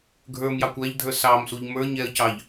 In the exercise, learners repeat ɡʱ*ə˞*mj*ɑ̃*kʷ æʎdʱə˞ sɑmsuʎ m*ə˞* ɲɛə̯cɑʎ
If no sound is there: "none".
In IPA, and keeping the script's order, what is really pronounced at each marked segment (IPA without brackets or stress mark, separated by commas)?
ə˞, ɑ, ə˞